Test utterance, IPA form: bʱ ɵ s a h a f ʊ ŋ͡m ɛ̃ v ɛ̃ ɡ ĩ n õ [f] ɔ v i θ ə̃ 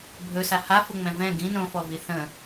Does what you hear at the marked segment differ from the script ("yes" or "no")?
no